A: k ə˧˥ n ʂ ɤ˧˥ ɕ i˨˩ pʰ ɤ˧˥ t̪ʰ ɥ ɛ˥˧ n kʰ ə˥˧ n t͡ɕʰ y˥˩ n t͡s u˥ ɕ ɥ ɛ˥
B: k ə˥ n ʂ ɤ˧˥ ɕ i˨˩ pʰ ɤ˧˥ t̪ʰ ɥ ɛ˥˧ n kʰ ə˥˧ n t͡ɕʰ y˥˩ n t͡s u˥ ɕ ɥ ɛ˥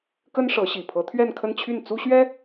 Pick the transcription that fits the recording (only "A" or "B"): B